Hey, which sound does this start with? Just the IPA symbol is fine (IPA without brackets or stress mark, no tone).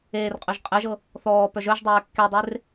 eː